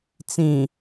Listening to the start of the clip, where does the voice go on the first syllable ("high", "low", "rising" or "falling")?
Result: low